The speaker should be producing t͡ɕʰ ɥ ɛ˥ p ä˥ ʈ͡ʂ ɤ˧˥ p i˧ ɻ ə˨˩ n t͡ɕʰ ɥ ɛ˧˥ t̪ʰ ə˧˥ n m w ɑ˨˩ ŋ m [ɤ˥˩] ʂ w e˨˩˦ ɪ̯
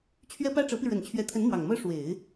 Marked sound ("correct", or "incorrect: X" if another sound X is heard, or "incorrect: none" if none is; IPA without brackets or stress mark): incorrect: ɤ˥